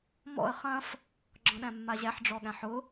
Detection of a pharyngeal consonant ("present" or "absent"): present